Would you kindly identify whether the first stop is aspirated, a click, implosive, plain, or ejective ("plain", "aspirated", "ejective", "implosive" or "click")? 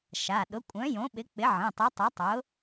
implosive